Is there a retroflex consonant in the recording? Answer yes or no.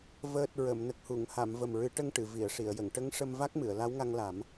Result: yes